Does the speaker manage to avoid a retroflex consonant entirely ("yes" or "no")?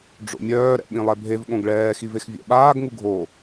no